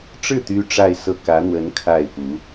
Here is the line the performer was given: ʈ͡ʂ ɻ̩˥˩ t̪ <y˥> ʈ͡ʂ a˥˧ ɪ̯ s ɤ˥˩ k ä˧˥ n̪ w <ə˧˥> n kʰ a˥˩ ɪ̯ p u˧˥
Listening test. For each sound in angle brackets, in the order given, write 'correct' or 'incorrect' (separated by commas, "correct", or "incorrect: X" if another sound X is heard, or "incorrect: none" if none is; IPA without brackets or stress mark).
correct, correct